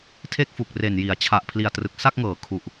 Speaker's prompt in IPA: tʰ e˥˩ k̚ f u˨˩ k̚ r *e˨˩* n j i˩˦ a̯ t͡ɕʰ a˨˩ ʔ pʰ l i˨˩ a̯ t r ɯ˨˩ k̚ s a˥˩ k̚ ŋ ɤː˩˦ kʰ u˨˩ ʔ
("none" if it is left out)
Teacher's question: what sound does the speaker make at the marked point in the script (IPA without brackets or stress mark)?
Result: e˨˩